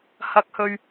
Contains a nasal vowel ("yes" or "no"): no